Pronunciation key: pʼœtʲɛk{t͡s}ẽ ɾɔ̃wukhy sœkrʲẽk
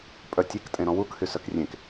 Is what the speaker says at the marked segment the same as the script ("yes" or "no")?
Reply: no